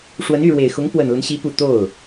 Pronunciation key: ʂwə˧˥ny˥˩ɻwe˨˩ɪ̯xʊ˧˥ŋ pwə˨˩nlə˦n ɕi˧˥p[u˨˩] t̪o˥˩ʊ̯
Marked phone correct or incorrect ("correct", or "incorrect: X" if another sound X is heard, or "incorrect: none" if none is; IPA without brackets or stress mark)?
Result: correct